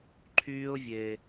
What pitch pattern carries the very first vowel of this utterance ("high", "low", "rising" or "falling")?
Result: high